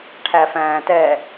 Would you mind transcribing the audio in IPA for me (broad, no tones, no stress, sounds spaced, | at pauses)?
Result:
ʈʰ æ f æ̃ː t ɛ